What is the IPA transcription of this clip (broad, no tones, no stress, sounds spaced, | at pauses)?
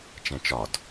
t͡ʃ ɛ̃ t͡ʃ ɒ d